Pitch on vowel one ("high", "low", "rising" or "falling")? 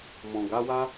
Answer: low